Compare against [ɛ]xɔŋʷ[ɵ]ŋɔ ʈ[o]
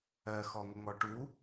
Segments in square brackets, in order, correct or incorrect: incorrect: ɜ, incorrect: ə, incorrect: u

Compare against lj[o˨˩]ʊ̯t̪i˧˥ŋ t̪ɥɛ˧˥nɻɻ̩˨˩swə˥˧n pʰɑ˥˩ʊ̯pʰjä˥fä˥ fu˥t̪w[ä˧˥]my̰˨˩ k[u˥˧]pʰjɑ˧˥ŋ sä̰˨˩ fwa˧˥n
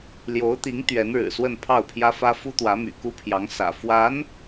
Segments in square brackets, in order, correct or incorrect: incorrect: o˧˥, correct, incorrect: u˥

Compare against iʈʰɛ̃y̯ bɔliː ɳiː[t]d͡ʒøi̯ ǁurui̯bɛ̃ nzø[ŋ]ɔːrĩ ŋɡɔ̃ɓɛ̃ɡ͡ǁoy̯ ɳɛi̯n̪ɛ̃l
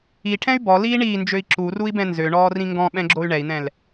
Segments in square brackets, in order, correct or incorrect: incorrect: n, incorrect: ɳ

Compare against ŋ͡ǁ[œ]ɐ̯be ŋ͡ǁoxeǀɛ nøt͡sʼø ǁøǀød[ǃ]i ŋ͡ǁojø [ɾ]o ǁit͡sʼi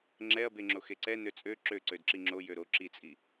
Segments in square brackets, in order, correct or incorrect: incorrect: ɛ, incorrect: ǁ, correct

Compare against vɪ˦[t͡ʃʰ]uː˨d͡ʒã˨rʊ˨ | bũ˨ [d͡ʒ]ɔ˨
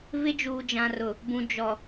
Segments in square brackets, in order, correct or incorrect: incorrect: d͡ʒ, correct

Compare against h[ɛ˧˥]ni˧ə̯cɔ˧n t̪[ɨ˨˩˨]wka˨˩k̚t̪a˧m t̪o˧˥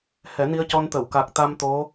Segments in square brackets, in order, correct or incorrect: incorrect: ɛ˨˩˦, incorrect: ə˨˩˨

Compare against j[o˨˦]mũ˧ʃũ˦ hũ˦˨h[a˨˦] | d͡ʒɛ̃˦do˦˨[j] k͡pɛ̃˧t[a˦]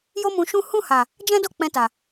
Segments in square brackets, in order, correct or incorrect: incorrect: o˦, incorrect: a˨, incorrect: none, incorrect: a˨

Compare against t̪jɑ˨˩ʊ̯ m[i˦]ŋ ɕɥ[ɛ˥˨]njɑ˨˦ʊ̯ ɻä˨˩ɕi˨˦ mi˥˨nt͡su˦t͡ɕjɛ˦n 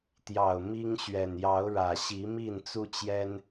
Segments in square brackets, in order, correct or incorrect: correct, incorrect: ɛ˨˩

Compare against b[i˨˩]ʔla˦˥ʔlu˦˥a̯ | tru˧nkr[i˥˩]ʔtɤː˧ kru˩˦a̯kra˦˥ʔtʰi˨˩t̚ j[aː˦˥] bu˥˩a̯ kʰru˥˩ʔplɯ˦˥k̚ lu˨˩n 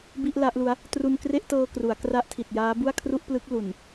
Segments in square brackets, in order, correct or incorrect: incorrect: i˥˩, incorrect: e˥˩, correct

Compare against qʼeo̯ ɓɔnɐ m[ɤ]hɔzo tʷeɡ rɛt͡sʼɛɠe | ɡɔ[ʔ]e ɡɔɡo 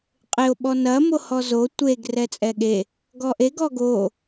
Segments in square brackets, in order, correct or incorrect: incorrect: o, correct

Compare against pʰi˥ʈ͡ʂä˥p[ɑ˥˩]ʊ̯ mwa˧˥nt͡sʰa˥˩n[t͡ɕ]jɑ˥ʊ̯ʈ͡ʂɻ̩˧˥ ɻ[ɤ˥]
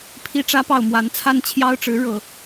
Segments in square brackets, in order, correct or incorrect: correct, incorrect: t͡ɕʰ, incorrect: ɤ˥˩

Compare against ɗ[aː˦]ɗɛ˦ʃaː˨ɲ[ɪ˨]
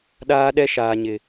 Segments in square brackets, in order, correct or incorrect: correct, correct

